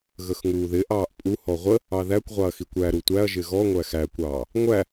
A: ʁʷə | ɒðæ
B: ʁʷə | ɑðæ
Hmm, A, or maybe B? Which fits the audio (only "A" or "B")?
B